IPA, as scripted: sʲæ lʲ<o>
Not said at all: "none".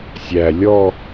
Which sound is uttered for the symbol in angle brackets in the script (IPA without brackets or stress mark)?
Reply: ɔ